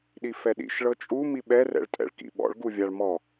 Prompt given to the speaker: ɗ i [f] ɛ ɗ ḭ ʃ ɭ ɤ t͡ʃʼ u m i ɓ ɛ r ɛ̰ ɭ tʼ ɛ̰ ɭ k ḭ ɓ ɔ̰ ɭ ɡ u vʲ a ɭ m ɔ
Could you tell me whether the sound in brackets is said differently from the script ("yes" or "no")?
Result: no